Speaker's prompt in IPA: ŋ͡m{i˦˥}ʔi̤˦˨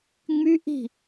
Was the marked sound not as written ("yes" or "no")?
yes